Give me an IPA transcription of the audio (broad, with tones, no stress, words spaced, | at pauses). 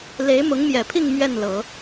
le˧˥ɪ̯mʊ˧˥ŋmjɛ˨˩pʰi˥˧ŋ mɥɛ˥˩nlɤ˨˩˦